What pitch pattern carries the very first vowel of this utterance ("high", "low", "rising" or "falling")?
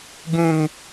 high